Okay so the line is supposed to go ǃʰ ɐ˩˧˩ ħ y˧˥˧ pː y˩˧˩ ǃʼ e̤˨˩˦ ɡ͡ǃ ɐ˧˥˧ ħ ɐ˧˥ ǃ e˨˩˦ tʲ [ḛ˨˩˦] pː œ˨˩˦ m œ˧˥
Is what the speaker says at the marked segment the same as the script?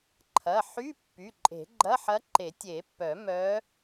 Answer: no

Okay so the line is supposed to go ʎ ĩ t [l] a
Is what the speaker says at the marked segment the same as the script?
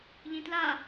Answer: yes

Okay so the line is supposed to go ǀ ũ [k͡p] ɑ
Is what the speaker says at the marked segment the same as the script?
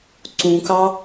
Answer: no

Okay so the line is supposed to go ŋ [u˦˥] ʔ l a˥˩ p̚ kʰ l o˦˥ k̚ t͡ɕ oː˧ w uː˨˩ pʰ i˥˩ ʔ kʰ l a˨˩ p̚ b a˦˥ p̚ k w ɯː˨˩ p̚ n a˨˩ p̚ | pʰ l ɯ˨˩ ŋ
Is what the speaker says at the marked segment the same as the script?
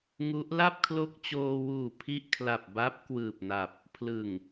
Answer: yes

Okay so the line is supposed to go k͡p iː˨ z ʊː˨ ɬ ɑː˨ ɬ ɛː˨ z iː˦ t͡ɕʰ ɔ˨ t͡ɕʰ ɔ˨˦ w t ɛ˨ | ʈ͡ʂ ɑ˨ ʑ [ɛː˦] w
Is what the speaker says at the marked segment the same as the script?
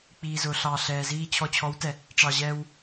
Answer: yes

